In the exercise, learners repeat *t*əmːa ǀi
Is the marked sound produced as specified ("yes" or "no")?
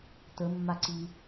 yes